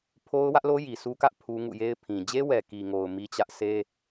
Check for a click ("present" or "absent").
absent